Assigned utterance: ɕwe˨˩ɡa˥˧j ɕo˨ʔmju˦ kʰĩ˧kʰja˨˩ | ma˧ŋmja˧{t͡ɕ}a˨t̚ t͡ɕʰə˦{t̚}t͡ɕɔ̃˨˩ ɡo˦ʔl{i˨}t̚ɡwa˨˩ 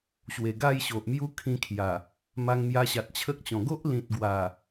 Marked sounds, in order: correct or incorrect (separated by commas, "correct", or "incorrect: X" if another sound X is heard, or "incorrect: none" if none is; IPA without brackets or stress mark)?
incorrect: ɕ, incorrect: k̚, incorrect: ĩ˨